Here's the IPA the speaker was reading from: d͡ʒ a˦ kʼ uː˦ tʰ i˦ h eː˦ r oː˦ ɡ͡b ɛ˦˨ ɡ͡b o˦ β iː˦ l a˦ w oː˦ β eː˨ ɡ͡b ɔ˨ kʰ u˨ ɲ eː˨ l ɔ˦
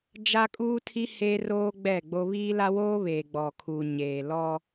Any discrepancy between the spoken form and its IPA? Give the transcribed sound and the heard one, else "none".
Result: none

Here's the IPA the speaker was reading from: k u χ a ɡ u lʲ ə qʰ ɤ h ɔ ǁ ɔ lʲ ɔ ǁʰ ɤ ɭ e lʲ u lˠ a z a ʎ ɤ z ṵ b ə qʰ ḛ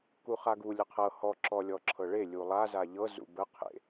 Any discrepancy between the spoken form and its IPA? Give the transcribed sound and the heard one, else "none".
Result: none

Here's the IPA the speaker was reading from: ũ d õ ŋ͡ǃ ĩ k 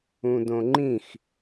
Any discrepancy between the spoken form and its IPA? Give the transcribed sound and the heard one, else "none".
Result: k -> x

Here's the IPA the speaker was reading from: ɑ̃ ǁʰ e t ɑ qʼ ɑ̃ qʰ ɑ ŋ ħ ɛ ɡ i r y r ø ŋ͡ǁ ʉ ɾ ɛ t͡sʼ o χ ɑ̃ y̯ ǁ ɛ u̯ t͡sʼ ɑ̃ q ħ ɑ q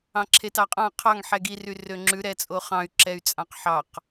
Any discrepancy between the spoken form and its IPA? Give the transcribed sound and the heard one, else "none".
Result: u̯ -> y̯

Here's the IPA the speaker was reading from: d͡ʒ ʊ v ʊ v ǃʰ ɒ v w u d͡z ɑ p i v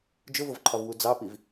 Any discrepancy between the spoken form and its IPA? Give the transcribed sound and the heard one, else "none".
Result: none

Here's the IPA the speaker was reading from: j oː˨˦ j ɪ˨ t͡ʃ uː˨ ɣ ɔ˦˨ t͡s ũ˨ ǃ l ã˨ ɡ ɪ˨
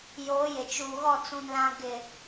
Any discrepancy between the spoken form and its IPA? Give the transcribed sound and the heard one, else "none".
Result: ǃ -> n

